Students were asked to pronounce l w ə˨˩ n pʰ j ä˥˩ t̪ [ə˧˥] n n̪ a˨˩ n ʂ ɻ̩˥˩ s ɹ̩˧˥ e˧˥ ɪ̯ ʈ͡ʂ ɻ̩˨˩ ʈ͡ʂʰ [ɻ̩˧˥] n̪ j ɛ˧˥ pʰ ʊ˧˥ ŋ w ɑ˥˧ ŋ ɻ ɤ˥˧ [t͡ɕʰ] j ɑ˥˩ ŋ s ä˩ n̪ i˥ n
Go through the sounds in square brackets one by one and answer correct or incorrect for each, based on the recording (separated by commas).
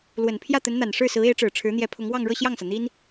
correct, correct, incorrect